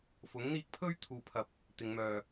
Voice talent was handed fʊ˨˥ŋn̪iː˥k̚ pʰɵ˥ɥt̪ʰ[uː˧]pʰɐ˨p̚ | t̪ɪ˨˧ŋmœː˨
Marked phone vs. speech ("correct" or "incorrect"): incorrect